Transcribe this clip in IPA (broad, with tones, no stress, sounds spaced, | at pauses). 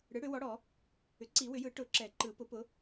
ɽ ɯ˩˥ ɽ ʏ˨˩˦ w ɔ˩˥ ɽ ɔ˨˩˦ | ʏ˩˥ ǀ i˨˩˦ w ʏ˨˩˦ j ɯ˨˩˦ ʈ ʊ˨˩˦ ǁ ɛ˨˩˦ ǃ ɯ˨˩˦ p ʊ˩˥ p ʊ˩˥